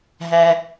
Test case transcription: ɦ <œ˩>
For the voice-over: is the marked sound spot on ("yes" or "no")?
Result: no